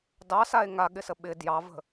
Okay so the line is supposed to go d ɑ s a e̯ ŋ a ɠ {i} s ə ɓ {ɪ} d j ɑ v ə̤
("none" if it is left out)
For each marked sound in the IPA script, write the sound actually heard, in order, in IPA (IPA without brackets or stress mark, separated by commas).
ɪ, ɪ